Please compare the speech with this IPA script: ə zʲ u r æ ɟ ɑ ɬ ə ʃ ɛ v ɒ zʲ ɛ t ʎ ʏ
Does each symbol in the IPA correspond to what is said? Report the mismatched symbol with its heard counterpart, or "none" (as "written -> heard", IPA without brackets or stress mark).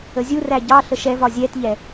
ʏ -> ɛ